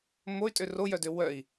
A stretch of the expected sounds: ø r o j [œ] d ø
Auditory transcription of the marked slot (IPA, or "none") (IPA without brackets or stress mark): œ